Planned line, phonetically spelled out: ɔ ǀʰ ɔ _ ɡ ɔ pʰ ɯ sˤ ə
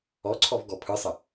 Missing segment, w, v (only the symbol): v